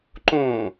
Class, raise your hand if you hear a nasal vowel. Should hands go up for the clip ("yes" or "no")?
yes